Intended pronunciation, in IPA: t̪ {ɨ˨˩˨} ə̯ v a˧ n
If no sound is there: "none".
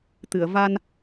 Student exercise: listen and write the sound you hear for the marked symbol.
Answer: ɨ˨˩˨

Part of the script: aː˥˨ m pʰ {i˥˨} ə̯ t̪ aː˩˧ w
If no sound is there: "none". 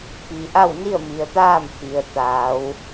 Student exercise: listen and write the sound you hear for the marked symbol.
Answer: i˩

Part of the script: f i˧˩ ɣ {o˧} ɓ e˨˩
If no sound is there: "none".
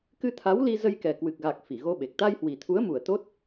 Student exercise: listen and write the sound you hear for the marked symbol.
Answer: o˧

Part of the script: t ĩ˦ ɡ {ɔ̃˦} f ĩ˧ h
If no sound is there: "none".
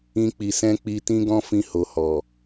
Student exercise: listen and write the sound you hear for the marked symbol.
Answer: ɔ̃˦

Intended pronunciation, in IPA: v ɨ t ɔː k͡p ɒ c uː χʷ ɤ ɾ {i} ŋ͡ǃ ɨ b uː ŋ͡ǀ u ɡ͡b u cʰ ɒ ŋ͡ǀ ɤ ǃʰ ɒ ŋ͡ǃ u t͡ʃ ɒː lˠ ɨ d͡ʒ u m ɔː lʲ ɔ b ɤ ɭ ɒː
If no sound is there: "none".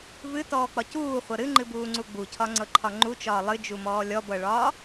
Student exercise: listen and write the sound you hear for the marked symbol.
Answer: ɨ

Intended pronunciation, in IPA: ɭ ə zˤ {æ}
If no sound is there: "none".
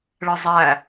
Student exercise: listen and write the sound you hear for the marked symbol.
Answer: æ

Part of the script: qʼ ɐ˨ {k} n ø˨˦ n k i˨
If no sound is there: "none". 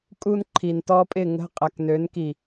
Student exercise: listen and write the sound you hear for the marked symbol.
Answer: k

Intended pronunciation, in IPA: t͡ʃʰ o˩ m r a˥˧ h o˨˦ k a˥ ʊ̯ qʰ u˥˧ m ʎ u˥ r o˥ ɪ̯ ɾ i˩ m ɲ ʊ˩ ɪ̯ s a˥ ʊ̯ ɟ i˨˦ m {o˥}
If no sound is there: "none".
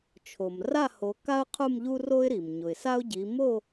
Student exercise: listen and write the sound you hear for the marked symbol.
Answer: o˥˧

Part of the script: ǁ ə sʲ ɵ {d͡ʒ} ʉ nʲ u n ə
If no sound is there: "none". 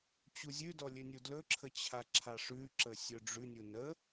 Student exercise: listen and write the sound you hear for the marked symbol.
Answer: ɖ͡ʐ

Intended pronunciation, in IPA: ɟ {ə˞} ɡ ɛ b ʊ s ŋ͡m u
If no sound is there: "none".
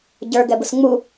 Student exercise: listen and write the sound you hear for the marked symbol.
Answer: ə˞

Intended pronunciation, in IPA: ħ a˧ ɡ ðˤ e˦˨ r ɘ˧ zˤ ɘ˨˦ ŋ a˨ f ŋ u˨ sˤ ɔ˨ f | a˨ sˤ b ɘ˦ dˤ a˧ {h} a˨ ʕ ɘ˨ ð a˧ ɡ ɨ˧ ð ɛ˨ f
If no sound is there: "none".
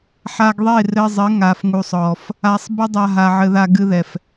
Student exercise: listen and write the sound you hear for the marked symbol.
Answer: ɦ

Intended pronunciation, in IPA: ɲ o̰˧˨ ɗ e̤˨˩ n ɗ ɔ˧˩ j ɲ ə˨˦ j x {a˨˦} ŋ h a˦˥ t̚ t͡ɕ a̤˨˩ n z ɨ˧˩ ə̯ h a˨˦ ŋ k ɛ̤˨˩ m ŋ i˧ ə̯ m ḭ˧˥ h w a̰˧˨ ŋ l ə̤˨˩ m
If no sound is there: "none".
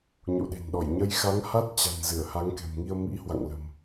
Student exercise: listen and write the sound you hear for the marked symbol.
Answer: a˨˦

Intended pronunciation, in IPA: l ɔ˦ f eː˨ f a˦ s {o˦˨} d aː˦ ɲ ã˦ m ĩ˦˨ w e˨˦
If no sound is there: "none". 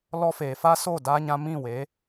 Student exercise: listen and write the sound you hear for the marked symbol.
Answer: o˦˨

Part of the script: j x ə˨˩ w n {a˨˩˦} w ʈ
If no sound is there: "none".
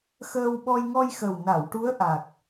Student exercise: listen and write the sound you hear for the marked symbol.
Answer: a˨˩˨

